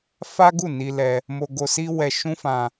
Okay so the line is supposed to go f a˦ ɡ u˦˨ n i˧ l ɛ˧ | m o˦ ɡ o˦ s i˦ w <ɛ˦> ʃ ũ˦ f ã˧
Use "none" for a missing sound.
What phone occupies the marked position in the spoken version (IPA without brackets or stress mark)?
ɛ˧